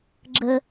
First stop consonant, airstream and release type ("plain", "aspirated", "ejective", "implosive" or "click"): click